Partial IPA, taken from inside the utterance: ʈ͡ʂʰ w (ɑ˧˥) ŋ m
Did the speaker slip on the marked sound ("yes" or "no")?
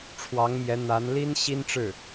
no